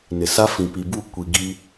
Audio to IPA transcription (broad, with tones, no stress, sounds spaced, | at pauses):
n ɪ˨ s a˦ f ĩ˨ p i˨ b u˦˨ kʷ i˨ ɡ i˦